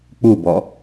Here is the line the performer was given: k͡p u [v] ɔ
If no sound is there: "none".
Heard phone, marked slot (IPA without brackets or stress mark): b